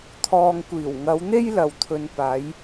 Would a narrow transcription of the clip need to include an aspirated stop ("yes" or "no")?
yes